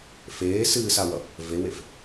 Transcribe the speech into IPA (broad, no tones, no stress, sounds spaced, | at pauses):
f eː s ɨː s a w ʌ | v e w e f